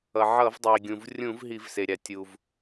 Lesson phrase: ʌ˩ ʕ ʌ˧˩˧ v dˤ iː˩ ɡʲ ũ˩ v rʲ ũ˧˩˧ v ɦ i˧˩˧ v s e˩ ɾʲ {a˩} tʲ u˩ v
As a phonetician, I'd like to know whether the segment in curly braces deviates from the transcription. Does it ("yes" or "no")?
no